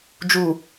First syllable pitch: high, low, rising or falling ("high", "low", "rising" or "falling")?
low